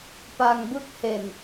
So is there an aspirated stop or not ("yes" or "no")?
no